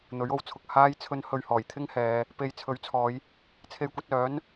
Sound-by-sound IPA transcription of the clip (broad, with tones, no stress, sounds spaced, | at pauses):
n̪ ɵ˨˥ ɥ o˨˥ w t͡sʰ ʊ˨ k̚ h aː˧ j t͡sʰ ɵ˨˧ n h ɵ˨ ɥ h ɔː˨˩ j t̪ʰ ɪ˥ ŋ h ɛː˨˧ | p e˨˧ j t͡sʰ ɵ˨˥ ɥ t͡sʰ ɔː˨˧ j | t͡sʰ e˧ j kʷ ɐ˧ t̚ œː˨˥ n